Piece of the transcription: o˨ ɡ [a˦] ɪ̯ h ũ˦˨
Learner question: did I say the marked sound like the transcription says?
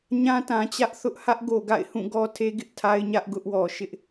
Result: no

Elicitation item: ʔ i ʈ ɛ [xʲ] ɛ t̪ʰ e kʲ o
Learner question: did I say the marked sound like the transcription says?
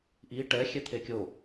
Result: yes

